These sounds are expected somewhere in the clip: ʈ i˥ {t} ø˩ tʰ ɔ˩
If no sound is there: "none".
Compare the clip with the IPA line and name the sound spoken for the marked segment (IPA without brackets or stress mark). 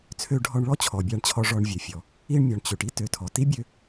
t